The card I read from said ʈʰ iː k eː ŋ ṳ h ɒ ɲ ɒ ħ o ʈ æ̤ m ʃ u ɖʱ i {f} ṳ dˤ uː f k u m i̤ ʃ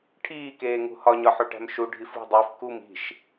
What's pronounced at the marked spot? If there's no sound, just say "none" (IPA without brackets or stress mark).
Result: f